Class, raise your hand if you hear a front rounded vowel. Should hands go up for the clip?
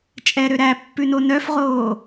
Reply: yes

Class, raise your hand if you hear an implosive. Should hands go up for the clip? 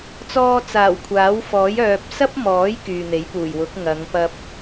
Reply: no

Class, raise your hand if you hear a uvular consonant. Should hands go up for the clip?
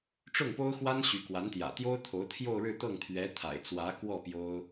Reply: no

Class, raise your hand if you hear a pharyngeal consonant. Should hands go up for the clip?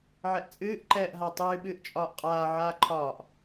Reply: yes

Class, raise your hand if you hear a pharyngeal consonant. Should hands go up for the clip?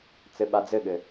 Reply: no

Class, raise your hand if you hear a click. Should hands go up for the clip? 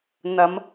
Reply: no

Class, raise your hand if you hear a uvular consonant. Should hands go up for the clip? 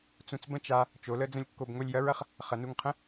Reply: yes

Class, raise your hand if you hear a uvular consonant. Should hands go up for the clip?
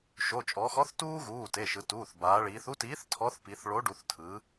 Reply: no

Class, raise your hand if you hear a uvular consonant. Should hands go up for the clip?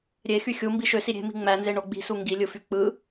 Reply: no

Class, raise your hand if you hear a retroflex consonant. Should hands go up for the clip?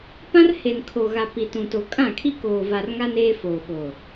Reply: no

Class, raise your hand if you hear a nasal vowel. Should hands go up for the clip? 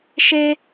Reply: no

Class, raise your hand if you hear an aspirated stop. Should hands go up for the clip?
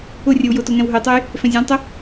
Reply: no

